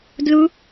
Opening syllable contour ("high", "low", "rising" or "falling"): rising